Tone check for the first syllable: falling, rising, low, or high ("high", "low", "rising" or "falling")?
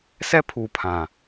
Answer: high